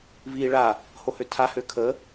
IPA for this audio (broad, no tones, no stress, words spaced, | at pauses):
viːɭa | hohøtʰa høkʰə